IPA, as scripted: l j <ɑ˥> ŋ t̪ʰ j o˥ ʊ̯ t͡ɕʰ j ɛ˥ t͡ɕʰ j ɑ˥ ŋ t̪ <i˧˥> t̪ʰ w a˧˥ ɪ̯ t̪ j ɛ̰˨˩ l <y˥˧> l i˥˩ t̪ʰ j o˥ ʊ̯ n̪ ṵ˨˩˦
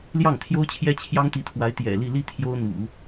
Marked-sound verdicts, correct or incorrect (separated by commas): incorrect, correct, incorrect